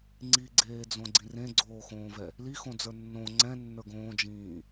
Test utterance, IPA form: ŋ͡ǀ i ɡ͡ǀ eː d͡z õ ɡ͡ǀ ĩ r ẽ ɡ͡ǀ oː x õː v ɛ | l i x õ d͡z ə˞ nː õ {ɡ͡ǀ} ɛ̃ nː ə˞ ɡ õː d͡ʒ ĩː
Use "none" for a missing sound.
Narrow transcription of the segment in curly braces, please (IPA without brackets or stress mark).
ŋ͡ǀ